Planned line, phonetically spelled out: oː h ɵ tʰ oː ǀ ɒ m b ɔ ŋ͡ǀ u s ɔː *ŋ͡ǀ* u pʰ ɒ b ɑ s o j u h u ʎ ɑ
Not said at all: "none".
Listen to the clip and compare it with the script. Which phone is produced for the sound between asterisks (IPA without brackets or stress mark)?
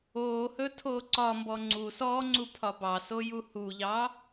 ŋ͡ǀ